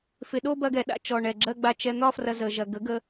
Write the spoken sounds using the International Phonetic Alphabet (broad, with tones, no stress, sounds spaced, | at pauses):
f ɪ˨ ɗ o˦ b ɐ˧ ɡ ɛ˨ ɗ a̰˦ t͡ʃ ɔ˨ ɳ ɛ˨ ɡ͡ǁ ɜ˦ ɡ͡b a˧ t͡ʃ ɛ˧ n̪ ɒ˦ f r ɐ˧ z ə˧ ʒ ɐ˧ ɡ ə˨˦ ɡ ə˧